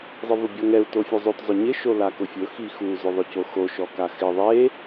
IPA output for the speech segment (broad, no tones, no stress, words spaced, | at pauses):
zˤɪvʊbʲɔŋɛu̯ tofʲuzˤot zˤʊɲɪ ʃolakʊfʲʊ xixu zʊðˤʊcoxo ʃɔkaxɪ ðˤe